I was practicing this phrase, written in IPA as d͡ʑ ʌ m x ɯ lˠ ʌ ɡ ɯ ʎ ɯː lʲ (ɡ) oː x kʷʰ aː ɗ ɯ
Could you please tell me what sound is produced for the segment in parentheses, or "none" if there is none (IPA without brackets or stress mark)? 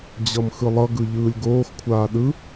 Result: ɡ